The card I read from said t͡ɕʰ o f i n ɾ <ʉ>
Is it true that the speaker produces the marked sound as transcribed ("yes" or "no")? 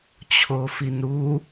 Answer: no